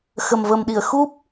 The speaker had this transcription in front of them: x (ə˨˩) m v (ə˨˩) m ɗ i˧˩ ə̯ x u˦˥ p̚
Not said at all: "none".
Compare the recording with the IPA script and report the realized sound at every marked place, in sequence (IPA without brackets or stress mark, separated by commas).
ə˨˩, ə˨˩